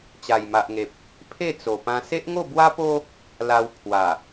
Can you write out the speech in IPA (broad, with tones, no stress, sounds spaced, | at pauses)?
t͡ɕ a˨˩ j m a˨ ʔ ŋ e˨ p̚ | pʰ e˥˧ t͡s o˨˩ p ã˧ s e˦ ʔ ŋ o˥˧ b w a˦ p o˦ | l a˧ w pʰ w a˨˩